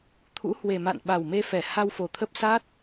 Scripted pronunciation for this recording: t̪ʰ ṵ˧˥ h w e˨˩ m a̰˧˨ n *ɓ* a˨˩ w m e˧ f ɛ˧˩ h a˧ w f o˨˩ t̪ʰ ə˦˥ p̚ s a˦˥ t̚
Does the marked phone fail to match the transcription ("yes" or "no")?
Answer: no